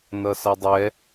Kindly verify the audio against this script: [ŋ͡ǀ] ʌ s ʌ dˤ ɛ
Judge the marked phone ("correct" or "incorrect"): incorrect